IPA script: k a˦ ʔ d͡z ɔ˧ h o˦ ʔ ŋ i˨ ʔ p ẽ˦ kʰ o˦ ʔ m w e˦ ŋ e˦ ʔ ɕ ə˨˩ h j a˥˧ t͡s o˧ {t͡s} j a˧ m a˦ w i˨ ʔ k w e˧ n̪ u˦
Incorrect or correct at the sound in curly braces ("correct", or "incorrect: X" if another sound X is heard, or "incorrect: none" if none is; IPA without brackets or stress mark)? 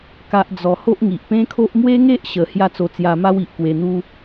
correct